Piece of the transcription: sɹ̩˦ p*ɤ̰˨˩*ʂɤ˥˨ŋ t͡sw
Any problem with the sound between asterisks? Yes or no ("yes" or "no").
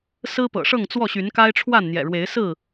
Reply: no